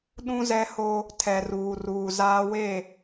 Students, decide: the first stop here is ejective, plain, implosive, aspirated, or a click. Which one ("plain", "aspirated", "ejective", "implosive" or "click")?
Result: implosive